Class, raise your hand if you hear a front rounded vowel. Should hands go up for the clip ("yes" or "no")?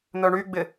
yes